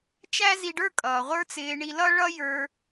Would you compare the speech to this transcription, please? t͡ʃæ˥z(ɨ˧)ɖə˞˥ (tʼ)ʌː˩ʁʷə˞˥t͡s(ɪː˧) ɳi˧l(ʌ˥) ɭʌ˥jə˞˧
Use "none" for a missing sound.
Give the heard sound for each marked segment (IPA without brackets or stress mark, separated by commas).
i˧, kʼ, ɪː˧, ʌ˥